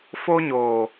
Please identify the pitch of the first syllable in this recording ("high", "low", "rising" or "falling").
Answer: high